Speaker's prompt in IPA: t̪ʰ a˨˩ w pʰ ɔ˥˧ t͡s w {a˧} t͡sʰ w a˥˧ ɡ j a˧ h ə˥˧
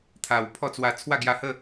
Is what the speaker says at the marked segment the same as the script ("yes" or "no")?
yes